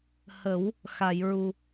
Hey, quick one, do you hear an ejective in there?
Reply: no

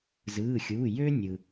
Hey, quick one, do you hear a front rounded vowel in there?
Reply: yes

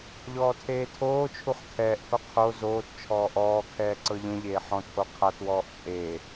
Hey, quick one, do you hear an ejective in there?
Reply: yes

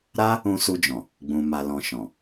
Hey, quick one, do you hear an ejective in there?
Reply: no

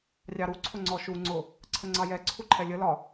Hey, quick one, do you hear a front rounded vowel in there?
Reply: no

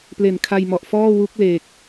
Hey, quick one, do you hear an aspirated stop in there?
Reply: yes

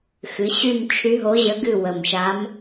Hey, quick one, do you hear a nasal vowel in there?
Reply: no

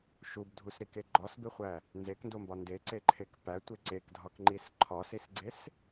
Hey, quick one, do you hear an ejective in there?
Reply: no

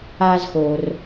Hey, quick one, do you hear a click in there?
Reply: no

